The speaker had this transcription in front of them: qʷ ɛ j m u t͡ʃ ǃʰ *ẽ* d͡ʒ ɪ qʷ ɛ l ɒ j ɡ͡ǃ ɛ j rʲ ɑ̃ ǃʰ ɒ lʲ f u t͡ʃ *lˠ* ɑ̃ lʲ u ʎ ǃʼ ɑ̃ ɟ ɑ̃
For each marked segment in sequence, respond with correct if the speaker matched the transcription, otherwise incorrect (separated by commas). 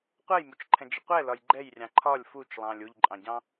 incorrect, correct